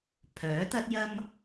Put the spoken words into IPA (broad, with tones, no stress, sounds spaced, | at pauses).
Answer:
pʰ œː˨˥ t̪ ɐ˥ t̚ j ɐ˥ m